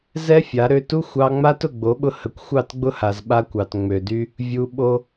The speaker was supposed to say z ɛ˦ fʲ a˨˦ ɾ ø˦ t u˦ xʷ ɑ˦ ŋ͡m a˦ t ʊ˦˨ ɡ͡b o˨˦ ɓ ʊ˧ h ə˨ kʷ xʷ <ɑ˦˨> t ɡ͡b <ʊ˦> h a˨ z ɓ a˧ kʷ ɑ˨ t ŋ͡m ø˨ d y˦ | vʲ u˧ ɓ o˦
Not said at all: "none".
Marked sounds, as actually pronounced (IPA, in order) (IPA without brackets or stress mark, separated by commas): ɑ˦˨, ʊ˦